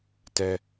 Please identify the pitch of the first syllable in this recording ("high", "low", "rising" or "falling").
high